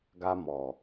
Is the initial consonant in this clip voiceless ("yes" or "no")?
no